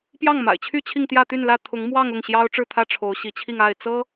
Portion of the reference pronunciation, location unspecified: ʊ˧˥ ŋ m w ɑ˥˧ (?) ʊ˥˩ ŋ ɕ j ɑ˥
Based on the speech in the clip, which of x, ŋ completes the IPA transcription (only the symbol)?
ŋ